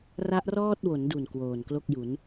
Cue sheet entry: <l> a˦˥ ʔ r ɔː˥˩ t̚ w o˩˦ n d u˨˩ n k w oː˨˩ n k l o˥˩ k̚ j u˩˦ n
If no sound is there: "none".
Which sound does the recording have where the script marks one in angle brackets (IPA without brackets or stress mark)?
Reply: r